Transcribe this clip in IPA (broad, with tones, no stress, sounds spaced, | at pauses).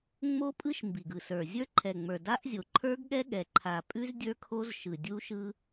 ŋ͡m o˦˥ pʼ ɯ˦˥ ʃ m b i˨˩ ɡ ɯ˨˩ s ə˞˨˩ zʲ ə˞˦˥ ǃʰ ɛ˨˩ ŋ͡m ə˞˨˩ d a˦˥ ʔ zʲ o˨˩ ǃʰ ə˞˦˥ ɡ ɠ ɛ˦˥ ɠ ɛ˨˩ ǃʰ a˨˩ pʼ ʉ˦˥ z dʲ ə˞˦˥ kʰ o˦˥ z ʃ ɯ˨˩ dʲ u˦˥ ʃ ɯ˦˥